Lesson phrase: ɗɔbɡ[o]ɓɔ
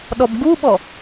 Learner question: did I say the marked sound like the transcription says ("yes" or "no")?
no